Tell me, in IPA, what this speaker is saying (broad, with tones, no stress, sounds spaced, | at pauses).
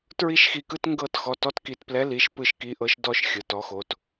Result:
t ɹ i˥ ʃ x i˧ k ɯ˥ t ŋ ɡ ɤ˥˧ t x ɔ˩˧˩ t ɔ˥ t k i˧ t p l ɛ˧˥ l i˩˧˩ ʃ p ɯ˧ ʃ k i˧˥ ʔ ɤ˧˥ ʃ d ɔ˥˧ ʃ xʲ ɯ˩˧˩ t ɔ˧˥ x o˩˧˩ t